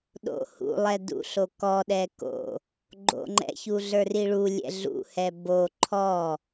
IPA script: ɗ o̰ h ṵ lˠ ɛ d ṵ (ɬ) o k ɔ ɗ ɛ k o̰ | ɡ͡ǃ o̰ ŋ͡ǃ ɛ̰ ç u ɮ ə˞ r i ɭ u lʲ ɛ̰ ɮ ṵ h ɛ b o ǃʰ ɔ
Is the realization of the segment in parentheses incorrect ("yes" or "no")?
no